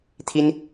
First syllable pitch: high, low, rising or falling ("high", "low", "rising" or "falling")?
high